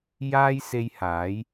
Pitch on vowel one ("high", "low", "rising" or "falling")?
high